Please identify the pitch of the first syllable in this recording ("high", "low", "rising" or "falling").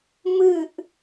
falling